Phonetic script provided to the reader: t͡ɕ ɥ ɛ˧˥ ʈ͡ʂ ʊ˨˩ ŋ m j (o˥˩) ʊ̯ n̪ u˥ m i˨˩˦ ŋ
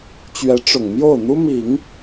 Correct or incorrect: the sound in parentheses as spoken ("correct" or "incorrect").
correct